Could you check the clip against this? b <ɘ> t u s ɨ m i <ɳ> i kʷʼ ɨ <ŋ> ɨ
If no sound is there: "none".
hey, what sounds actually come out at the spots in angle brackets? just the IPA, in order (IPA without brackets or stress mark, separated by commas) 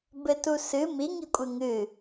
ɘ, ŋ, ŋ